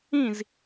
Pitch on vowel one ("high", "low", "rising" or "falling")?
falling